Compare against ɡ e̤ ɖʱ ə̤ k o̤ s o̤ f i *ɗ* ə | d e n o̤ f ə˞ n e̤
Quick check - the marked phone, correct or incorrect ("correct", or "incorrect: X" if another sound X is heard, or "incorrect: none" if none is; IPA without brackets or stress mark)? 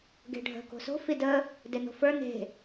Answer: incorrect: d